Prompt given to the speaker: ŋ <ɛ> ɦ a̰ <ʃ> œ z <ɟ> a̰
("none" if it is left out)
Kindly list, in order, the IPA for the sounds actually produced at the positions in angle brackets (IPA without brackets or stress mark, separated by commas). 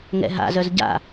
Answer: ɛ̰, z, ɟ